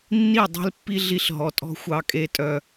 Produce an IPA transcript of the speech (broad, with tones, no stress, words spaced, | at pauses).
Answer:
nːi˦˨ dˤe̤˦l pːi˦ ɮi˦ɬ ɦɔ˨tʼɔ̤˦ xʷɑ˦kʼe˦tʼœ˦